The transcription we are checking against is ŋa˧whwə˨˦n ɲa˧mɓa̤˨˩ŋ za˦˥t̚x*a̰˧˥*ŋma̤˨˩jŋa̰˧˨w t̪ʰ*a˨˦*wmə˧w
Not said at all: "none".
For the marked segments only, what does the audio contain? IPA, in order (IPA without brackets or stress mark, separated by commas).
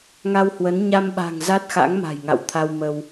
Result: a̰˧˥, a˧